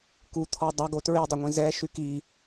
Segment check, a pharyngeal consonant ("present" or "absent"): absent